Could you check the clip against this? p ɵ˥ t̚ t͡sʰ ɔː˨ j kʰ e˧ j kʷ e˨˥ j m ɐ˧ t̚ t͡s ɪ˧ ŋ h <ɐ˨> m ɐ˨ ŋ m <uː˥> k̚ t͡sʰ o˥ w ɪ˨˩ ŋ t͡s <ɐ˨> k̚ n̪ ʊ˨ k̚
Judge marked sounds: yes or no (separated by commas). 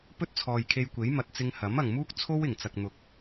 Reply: no, yes, yes